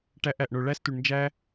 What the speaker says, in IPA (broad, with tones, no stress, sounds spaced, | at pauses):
ʈ æ˧ ʔ æ˨ ʔ ɳ o˨ ɭ æ˦ s t u˨ ɳ n d͡ʒ æ˦